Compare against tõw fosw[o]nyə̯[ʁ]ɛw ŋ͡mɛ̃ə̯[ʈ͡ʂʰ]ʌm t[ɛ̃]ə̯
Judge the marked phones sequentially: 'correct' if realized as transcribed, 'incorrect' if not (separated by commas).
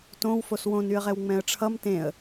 incorrect, correct, correct, incorrect